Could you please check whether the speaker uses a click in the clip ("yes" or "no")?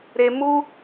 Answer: no